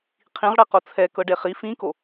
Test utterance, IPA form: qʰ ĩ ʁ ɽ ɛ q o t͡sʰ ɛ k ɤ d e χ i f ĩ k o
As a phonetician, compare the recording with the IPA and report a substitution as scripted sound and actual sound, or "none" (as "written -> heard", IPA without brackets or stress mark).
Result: d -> ɖ